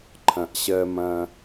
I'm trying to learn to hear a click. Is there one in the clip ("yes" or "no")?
yes